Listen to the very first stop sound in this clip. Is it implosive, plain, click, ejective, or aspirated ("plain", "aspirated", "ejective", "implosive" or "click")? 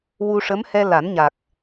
plain